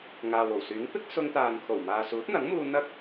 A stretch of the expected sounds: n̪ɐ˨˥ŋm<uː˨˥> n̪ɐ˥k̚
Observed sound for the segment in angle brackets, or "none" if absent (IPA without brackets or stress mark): uː˧